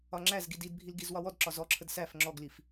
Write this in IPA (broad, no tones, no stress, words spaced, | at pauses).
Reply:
ɒŋ͡ǁæzɡi didbʱil ɡizwɒwɔdǁɒ zɔǁʰəd sæf ŋ͡ǁɔɡlif